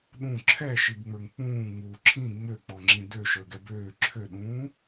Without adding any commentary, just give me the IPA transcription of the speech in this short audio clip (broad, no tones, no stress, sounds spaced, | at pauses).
ɗ ũ ǁʰ ɛ ʃ i b ŋ͡m ə˞ ŋ k͡p ũː ŋ͡m uː ǁʰ ĩ ŋ͡m ø k͡p ɔ ŋ͡ǁ ĩ d ø ʃ ə˞ ɡ ɛ b øː ǁʰ ø ɗ ũː